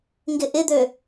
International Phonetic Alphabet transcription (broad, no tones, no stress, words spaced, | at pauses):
ŋɡɪʔɪd̪ø